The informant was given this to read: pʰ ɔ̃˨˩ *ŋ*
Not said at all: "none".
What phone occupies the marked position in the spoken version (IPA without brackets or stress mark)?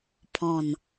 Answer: n